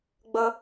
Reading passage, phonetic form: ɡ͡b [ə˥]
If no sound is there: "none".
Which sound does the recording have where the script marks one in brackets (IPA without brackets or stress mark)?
ə˥